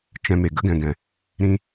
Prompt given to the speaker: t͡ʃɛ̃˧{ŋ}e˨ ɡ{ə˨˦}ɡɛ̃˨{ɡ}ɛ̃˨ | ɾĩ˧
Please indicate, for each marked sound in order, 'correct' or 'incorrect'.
incorrect: m, correct, correct

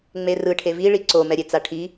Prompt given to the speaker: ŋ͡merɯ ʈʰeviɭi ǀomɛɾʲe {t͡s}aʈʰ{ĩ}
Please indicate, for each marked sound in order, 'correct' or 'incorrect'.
correct, incorrect: i

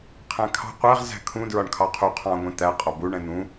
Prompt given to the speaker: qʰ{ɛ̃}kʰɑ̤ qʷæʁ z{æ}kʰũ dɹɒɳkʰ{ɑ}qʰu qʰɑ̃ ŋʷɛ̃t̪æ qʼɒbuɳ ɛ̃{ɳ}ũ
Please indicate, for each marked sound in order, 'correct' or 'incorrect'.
incorrect: æ̃, incorrect: æ̤, correct, incorrect: n̪

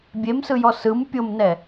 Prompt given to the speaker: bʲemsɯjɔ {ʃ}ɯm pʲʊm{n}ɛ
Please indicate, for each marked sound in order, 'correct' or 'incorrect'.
incorrect: s, correct

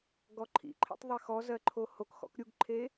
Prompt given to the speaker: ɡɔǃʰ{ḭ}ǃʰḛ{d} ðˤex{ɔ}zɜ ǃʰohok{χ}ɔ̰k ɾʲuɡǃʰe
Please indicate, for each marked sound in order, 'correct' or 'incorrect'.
correct, incorrect: tˤ, correct, incorrect: x

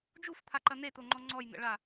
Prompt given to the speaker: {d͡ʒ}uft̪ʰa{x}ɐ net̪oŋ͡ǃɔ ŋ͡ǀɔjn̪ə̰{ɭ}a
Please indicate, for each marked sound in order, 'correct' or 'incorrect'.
correct, incorrect: ǃ, correct

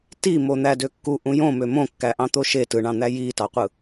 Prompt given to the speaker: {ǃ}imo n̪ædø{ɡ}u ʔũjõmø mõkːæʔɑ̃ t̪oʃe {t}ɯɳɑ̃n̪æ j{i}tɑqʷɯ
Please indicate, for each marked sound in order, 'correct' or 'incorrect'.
incorrect: t, incorrect: kː, correct, correct

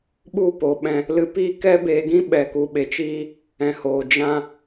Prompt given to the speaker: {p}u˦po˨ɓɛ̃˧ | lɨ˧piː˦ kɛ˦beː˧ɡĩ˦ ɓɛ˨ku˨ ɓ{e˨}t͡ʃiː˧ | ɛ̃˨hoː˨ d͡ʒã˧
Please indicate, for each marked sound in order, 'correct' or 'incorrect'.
incorrect: ɓ, correct

